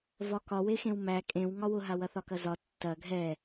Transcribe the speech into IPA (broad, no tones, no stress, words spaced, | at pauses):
vɒkɒwexẽw mæ kʼẽw ŋɒwʊɦa wɐθɒkɐzɒ tːɐ ɡʱɛ